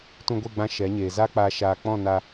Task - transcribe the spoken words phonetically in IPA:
t ũ˧ ɡʷ e˦˨ ɡ͡b ã˧ ʃ ɛ˨˦ ɲ eː˨ z a˦ k͡p aː˧ ʃ aː˧ k͡p ɔ̃˦˨ n a˧

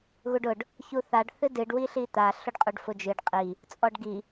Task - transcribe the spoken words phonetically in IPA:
ɣ u ɖ ʊ ɖ | ç u θ a ɖ θ ɨ d ɨ ɖ w i ɬ i t̪ a ɬ ʊ ɖ qʼ u ɖ f ʊ d͡ʒ ɨ ɖ qʼ i | t͡sʼ ɔ ɖ ɡ i

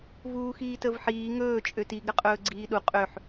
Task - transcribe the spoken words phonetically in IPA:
v uː x iː t ə v ħ iː ŋ ɵː t͡ʃʼ ø t i ɡ ɾ ə qʼ ɵː ɡ͡ǀ iː ɗ u qʼ ø ħ

